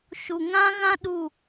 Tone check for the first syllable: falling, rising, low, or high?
low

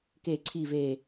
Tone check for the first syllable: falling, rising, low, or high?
low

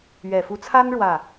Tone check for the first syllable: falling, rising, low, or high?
low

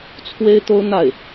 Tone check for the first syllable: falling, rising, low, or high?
high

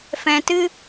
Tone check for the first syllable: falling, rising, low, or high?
low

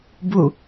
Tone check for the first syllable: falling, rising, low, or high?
falling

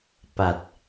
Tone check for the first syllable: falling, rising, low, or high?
low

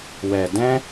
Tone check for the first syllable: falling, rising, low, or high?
low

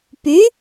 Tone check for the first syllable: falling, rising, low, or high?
rising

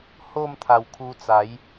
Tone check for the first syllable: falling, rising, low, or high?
falling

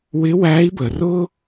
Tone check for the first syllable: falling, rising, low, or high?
rising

